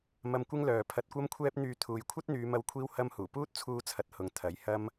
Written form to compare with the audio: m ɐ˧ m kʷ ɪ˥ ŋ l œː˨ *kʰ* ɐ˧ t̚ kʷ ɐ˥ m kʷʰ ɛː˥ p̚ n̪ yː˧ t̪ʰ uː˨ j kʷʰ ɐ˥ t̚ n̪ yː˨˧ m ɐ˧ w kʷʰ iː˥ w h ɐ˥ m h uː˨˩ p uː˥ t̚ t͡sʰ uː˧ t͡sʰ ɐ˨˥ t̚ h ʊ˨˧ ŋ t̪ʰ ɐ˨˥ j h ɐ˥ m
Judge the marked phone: incorrect: pʰ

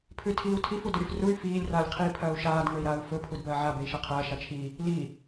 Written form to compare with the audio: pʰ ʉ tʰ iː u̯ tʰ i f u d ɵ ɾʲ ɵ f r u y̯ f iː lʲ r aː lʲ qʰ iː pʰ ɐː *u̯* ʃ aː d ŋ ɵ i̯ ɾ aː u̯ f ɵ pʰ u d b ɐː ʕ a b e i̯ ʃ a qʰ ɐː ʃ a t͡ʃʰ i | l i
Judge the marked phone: correct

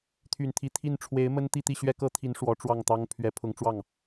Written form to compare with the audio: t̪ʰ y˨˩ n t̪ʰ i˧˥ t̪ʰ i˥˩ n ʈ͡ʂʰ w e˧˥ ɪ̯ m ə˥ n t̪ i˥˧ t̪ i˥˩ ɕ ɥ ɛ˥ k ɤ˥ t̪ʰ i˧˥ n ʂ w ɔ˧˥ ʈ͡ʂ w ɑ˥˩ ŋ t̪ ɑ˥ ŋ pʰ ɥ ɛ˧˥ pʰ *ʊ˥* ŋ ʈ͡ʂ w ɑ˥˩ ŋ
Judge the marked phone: incorrect: ʊ˧˥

